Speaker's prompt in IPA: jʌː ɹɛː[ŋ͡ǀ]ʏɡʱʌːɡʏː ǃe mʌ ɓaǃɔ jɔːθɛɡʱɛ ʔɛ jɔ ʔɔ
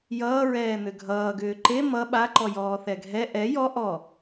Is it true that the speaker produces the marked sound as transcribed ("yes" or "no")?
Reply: no